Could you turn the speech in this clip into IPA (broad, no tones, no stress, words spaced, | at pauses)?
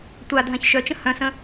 tʷa dʱãçʃœt͡ʃə̃ hœ̃sə̃